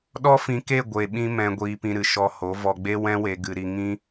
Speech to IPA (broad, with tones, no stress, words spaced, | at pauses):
ɗɔ˦fĩ˧ke˦˨ ɡʷe˨ɓĩ˧ mɛ̃˧ ɡʷiː˧pĩ˧ɾɨ˨ ʃɔ˧ho˨˦ vɔ˧ɡ͡be˦ wɛ̃˦we˧ɡɨ˧ɾi˧ ŋĩ˦